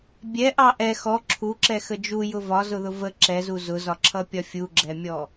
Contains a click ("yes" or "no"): yes